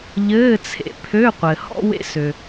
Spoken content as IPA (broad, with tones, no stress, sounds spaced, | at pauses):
ʎ ɘː˧˥˧ t͡sʰ ḛ˧ pʰ ø˧˥˧ qʷ ɘ˩ h ɔ̰˧ w ḛ˧ s ø˩